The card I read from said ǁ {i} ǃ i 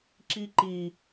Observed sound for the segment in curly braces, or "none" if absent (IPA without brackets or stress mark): i